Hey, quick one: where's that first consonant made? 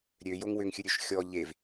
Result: tongue tip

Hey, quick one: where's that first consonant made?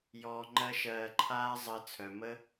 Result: palate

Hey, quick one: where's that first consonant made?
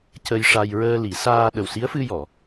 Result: palate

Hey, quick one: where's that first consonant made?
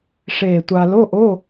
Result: retroflex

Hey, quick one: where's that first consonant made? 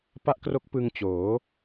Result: lips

